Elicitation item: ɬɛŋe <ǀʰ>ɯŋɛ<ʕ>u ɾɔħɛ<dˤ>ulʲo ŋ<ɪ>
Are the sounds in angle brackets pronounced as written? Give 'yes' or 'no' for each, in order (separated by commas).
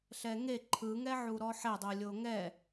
no, yes, yes, no